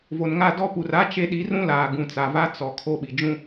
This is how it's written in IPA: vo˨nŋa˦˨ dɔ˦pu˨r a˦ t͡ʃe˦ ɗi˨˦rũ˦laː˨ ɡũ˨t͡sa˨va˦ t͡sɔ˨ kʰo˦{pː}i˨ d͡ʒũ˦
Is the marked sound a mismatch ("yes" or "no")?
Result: yes